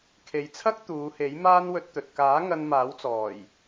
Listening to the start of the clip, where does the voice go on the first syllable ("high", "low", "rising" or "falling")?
low